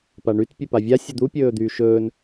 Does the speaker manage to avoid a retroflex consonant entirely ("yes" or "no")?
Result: no